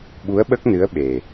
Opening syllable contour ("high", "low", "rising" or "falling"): rising